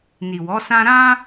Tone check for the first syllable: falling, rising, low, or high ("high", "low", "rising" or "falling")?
low